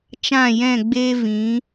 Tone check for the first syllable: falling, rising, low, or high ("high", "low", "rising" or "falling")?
falling